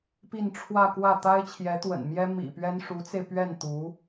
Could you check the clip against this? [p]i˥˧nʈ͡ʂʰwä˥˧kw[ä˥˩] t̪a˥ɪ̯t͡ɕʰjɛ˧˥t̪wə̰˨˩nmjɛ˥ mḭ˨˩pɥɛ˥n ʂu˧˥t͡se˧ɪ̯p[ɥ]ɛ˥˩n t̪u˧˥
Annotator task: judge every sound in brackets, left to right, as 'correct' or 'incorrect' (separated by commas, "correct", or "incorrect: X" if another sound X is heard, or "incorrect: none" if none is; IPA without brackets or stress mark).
correct, correct, correct